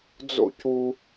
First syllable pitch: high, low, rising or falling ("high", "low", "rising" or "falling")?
high